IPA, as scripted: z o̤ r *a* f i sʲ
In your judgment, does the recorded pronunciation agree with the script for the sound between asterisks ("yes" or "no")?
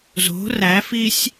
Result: no